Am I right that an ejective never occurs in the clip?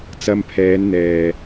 yes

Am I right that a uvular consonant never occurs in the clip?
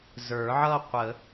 no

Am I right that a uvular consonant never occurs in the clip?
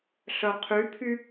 no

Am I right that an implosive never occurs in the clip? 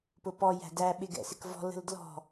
no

